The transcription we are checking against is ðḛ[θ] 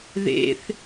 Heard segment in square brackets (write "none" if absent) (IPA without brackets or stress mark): θ